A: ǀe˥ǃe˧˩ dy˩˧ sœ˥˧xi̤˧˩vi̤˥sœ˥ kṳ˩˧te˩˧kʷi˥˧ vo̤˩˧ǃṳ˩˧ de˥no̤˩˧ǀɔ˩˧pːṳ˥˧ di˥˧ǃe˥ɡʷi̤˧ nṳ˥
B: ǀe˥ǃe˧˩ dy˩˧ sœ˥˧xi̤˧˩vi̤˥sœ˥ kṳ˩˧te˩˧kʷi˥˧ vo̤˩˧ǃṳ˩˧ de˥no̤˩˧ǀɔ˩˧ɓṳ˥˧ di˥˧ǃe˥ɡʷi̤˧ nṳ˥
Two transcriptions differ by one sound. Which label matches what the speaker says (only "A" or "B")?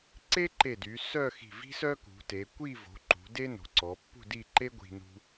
A